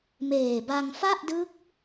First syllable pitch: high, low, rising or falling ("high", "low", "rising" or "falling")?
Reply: low